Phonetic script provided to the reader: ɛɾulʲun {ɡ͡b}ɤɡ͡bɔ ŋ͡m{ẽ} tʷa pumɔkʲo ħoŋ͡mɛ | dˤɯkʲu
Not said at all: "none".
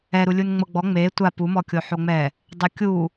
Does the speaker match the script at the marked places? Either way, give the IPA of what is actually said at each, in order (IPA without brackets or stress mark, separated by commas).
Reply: ŋ͡m, e